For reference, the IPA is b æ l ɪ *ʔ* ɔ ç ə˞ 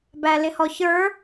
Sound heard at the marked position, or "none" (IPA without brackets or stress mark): h